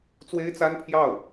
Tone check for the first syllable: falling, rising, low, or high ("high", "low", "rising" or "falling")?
high